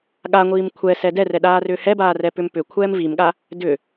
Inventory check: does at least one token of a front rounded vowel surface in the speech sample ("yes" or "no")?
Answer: yes